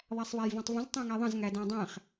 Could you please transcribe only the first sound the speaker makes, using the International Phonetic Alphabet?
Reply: ðˤ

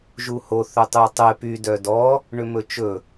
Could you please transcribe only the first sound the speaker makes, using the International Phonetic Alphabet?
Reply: ʒ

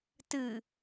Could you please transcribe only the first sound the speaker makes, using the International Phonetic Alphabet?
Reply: t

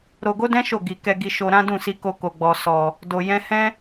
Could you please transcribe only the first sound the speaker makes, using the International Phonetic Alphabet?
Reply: ɾ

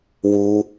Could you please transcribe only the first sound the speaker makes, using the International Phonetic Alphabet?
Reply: w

